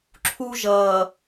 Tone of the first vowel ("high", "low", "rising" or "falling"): high